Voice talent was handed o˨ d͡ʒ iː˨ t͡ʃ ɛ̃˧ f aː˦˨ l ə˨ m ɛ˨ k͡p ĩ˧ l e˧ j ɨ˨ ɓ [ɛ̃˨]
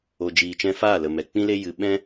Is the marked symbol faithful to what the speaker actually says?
no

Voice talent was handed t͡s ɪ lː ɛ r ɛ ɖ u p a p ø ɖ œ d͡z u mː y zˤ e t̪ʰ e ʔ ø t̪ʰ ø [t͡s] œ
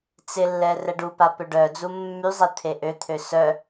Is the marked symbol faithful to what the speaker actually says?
no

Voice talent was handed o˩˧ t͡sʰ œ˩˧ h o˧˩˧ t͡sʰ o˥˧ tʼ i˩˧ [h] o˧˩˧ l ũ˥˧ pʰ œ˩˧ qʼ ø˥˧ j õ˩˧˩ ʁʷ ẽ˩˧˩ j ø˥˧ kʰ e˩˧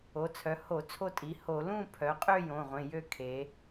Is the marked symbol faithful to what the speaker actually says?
yes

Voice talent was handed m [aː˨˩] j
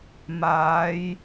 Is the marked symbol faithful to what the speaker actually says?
no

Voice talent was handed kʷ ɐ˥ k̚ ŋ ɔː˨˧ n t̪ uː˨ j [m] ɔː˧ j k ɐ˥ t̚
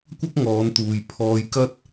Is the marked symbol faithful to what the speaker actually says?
no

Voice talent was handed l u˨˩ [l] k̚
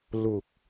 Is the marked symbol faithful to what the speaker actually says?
no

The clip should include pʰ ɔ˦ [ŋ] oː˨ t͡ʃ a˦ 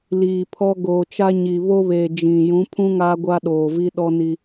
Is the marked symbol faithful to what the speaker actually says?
no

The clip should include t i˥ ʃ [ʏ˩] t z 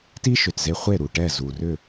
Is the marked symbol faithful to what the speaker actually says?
yes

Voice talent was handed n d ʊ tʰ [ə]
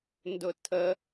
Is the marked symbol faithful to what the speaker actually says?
yes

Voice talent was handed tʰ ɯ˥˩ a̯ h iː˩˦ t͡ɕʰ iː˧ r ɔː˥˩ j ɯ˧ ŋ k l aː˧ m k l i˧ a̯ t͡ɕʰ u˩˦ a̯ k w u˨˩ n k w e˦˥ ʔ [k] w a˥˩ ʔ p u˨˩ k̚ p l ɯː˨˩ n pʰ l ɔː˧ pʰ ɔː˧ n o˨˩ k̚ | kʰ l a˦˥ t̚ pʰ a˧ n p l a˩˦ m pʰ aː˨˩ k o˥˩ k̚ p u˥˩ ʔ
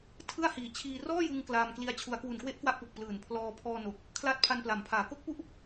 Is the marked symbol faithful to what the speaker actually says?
yes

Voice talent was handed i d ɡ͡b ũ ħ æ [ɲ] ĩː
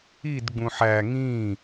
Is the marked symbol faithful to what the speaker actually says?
no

